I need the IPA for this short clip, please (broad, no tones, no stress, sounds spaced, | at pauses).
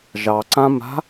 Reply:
ʒ ɑ ǀ ã m a̤